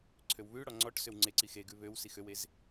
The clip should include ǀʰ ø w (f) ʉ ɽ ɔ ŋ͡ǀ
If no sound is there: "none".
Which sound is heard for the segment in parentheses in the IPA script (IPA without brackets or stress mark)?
β